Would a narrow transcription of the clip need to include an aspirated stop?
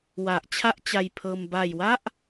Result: yes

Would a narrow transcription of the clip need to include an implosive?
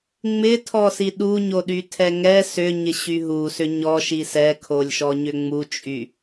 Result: yes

